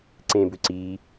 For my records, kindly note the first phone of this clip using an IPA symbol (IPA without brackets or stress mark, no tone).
ǀ